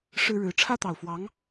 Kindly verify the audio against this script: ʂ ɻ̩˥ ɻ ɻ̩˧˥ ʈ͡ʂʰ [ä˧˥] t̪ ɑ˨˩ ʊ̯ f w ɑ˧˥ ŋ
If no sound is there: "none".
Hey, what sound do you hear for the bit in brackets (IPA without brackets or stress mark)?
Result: ä˥